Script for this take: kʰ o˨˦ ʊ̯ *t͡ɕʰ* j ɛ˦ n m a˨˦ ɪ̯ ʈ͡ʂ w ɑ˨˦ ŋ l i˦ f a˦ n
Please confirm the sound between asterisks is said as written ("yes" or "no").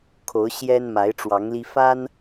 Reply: no